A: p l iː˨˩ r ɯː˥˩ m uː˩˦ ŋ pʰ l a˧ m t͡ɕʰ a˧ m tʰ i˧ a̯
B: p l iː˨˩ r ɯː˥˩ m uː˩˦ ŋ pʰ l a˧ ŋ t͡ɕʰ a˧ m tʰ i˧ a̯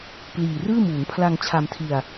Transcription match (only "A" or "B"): B